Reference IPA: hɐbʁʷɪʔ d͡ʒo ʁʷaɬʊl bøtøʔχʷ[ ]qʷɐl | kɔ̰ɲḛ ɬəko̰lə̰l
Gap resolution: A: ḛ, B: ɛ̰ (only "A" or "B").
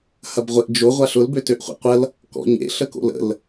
A